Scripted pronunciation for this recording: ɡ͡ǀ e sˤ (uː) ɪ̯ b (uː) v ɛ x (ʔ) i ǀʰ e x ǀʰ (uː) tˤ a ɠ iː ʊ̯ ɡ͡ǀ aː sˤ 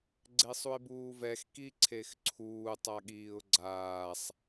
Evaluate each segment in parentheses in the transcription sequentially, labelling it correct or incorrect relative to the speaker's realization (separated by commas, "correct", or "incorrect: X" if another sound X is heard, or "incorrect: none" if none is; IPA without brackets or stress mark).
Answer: incorrect: u, correct, incorrect: k, correct